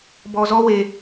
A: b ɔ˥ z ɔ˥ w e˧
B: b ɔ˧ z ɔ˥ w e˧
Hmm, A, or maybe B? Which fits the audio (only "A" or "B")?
B